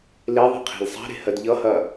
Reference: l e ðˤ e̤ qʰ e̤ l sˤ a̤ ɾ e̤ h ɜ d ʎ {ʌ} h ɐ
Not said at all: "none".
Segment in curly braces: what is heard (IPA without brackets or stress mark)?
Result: ʌ